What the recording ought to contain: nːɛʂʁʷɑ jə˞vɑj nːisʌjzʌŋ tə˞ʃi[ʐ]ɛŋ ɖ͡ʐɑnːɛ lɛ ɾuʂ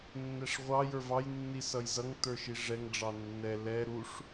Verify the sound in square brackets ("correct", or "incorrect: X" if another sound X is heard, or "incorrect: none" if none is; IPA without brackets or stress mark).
correct